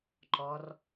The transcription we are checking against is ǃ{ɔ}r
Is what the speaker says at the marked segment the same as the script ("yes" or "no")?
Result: yes